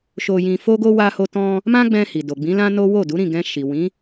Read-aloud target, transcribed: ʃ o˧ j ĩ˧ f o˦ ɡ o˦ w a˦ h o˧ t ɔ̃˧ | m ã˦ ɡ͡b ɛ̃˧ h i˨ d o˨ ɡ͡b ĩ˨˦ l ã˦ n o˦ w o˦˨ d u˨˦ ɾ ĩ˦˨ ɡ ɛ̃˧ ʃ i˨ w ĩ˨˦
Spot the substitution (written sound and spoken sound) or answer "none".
a˦ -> a˧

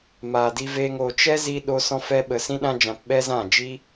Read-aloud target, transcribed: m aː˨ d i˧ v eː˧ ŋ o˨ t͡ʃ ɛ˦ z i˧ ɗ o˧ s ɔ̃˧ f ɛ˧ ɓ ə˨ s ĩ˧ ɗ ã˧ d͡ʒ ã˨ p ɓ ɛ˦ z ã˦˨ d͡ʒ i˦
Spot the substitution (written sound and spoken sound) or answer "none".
none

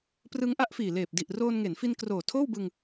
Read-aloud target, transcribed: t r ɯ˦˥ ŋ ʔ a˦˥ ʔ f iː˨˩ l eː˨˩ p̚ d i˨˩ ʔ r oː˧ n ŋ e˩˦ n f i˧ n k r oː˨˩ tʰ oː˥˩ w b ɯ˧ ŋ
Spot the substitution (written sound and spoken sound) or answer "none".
t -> p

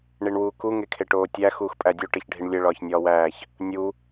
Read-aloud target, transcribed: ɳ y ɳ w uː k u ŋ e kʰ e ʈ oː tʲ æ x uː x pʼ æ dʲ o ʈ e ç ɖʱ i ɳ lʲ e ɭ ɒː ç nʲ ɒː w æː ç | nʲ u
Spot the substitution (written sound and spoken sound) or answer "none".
y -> i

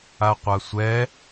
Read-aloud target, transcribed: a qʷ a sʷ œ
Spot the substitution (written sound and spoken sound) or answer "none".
œ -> ɛ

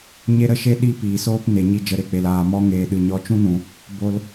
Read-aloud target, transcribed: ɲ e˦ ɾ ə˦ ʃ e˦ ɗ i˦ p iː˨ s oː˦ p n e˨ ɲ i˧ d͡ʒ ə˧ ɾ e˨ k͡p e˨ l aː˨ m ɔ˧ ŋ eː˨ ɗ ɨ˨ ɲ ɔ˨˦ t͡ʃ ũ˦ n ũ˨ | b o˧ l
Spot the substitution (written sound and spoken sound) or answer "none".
none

